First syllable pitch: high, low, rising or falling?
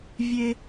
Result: high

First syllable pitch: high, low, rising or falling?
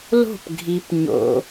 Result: falling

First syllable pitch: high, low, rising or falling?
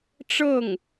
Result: falling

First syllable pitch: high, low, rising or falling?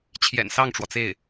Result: low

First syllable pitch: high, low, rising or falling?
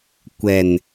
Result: low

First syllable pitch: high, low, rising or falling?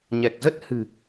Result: low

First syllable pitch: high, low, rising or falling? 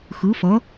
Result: rising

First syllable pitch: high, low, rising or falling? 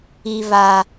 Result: high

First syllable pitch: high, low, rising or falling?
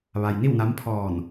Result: low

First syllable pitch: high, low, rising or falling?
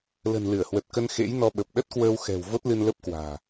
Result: low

